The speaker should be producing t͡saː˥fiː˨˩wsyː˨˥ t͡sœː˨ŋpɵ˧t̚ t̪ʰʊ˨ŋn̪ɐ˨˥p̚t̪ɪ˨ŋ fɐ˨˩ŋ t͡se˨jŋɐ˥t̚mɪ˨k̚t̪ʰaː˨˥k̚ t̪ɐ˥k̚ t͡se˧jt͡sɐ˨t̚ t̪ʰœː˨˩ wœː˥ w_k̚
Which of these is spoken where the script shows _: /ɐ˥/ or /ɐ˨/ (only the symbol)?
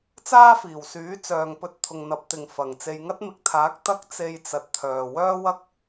ɐ˥